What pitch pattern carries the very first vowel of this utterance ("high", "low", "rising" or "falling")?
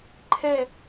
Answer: falling